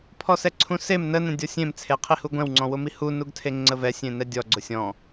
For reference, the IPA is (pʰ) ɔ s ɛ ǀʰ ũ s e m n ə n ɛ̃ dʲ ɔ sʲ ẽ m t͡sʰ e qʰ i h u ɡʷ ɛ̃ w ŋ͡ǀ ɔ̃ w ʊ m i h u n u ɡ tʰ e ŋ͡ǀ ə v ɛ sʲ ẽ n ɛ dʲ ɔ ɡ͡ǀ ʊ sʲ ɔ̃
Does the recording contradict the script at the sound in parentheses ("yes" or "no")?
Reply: no